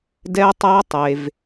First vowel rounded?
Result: no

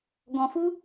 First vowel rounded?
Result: yes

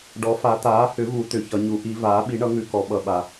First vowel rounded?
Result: yes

